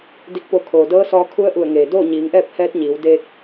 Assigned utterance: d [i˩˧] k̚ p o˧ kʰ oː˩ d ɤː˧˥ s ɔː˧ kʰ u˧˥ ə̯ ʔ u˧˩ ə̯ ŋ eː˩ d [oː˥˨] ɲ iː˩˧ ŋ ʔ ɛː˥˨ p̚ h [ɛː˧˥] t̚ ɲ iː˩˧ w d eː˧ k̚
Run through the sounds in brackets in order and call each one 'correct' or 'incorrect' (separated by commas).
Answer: incorrect, correct, correct